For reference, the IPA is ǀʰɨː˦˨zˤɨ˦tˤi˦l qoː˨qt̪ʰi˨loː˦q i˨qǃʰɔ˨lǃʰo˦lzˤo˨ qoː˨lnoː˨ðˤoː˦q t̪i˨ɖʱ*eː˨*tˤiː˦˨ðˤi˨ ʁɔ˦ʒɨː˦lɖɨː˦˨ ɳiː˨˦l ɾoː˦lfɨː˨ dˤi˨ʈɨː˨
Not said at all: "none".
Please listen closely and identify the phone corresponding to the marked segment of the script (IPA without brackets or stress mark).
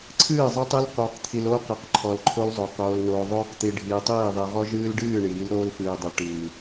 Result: iː˨